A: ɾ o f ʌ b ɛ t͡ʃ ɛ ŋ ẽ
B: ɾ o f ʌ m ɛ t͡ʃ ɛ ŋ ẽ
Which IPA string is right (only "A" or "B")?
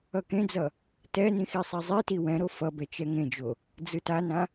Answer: A